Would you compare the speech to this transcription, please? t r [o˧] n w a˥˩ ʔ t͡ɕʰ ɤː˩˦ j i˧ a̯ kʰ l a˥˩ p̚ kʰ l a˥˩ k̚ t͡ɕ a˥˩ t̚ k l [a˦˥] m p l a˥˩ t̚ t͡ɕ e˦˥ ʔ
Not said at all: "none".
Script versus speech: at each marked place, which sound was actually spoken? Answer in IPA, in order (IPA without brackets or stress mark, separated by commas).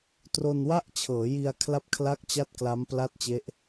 o˧, a˦˥